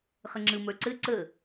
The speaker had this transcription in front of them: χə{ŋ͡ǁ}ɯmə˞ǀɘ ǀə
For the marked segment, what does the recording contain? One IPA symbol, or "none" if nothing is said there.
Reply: ŋ͡ǁ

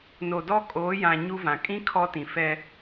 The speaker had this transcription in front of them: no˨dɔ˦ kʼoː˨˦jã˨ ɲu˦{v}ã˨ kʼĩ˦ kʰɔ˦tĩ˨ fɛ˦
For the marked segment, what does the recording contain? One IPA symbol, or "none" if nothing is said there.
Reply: v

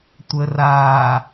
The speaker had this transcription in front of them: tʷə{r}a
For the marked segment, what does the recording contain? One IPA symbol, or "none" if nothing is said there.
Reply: r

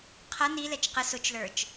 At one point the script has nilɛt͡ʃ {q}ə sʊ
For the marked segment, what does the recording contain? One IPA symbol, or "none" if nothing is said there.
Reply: q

